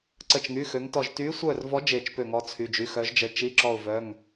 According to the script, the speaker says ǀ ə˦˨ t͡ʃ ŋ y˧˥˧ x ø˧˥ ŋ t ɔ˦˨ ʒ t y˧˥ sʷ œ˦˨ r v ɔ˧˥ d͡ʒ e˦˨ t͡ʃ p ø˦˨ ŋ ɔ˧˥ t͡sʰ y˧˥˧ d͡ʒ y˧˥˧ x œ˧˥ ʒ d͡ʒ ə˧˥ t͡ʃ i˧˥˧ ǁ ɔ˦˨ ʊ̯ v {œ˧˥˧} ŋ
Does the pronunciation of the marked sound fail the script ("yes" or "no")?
no